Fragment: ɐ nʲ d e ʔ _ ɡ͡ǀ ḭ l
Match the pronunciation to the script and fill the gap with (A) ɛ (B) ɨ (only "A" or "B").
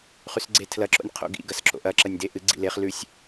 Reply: B